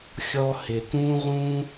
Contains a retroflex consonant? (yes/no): no